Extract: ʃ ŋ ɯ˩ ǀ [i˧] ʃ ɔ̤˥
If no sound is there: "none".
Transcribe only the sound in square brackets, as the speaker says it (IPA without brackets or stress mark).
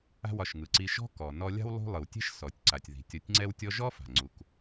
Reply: i˧